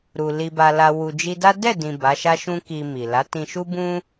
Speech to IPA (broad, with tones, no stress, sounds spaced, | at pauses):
ɾ u˨ l i˨ b a˨ l a˨ w u˨ d͡ʒ i˧ d a˦ d ɛ˦˨ d ĩ˨ b a˨˦ ʃ a˦ ʃ ũ˦ k i˧ m i˨ l a˨˦ t ĩ˧ ʃ u˦ b ũ˦